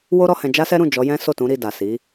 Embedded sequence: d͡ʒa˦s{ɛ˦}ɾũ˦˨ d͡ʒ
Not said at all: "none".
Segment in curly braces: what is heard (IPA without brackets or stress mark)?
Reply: ɛ˦